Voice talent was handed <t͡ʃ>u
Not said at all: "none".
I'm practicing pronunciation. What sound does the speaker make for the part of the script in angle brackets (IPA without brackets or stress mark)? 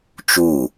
t͡ʃ